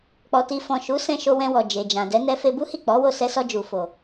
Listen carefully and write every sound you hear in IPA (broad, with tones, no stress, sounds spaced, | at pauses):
k͡p ɔ˨ t i˨ f ɔ̃˨ ʃ u˨˦ s ɛ̃˧ ʃ o˧ w ɛ̃˧ w ɔ˨ d͡ʒ e˨ d͡ʒ ã˨ d ɛ˨˦ n ɛ˧ f e˧ b u˦ h i˦˨ k͡p ɔ˨˦ w o˦˨ s ɛ˧ s ɔ˧ d͡ʒ u˨ f o˨